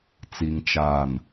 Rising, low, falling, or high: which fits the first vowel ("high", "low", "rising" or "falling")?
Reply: low